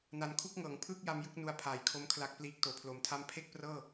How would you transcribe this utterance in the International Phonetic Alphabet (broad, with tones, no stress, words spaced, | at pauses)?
na˨˩nkʰu˥˩k̚ŋɤː˩˦ŋ pʰɯː˥˩k̚ja˧m jɯ˦˥k̚nu˧a̯pʰaː˩˦jkʰo˦˥m kʰla˦˥k̚pliː˦˥k̚ toː˩˦pʰloː˩˦mtʰa˥˩m pʰe˥˩k̚prɤː˥˩